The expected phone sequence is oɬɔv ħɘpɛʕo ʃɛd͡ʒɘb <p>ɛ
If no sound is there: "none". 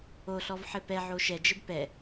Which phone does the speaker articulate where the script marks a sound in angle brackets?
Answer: p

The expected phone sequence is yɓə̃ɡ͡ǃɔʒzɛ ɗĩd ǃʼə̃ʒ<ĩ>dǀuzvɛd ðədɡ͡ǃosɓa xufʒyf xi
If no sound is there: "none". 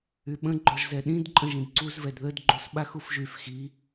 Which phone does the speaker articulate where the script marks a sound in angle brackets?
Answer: ĩ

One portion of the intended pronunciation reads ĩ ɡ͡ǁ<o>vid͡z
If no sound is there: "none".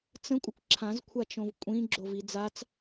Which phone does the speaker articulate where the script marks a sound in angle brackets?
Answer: o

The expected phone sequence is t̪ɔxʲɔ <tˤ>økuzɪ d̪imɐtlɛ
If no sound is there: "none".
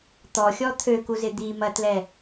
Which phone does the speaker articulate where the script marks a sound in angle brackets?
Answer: t̪ʰ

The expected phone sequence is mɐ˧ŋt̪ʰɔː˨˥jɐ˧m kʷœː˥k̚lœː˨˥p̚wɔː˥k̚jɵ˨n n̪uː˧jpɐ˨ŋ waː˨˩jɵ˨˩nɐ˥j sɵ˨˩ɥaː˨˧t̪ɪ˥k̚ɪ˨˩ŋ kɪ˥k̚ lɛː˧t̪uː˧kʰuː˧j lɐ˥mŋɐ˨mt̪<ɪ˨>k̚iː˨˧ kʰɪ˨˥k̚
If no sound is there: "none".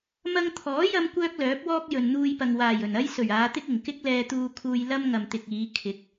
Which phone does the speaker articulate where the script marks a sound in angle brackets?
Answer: ɪ˨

